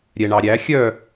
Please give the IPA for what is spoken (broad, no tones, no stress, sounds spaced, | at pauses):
ɾʲ ɛ ɳ ɑ ɾʲ æ xʲ œ